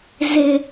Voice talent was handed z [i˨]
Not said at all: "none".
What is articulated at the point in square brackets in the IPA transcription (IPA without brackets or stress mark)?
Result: ɪ˨